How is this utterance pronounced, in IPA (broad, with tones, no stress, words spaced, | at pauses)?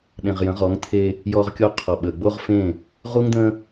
ɗẽ˨ʁjə̃˨˦ʁɔ˨˦ŋt̪ʰe˦ | jɔ˦ʁkʲo˦qʰɔ˨ɓə˨ ɡ͡bo˦ʁfẽ˦˨ | ʁu˦ŋd̪ə̃˦